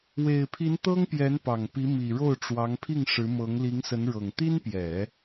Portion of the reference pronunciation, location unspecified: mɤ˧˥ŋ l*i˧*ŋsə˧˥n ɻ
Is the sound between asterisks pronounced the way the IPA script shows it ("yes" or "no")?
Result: no